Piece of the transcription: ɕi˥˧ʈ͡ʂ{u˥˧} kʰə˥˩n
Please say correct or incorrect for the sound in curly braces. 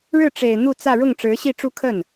correct